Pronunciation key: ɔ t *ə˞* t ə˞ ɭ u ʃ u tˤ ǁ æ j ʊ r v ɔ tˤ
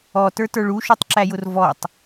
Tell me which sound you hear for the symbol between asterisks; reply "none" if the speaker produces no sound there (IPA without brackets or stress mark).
ə˞